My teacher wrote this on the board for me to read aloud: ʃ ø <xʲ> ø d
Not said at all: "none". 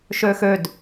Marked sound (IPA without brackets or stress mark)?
x